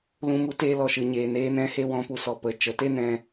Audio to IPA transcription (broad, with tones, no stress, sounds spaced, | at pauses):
l ũ˧ m u˦ t eː˧ l ɔ˨ ʃ ɨ˨ ɲ eː˨ n eː˧ n ɛ̃˧ h e˧ w ɔ̃˨˦ p u˨ s ɔ˨ p ə˨ t͡ʃ ə˨˦ t e˦ n ɛ̃˧